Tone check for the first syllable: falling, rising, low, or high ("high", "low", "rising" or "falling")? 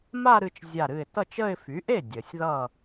falling